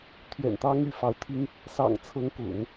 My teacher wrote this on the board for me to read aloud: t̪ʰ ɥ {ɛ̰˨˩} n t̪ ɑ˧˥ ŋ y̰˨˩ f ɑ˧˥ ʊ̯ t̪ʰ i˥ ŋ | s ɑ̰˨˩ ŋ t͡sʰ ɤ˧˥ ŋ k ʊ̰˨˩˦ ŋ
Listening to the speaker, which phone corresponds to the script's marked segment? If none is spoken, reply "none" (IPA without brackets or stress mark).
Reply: ɛ̰˨˩